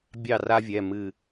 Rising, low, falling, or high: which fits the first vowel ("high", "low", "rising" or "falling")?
falling